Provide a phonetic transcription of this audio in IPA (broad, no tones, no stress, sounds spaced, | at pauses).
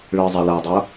ɭ ɯ zˤ a l a dˤ o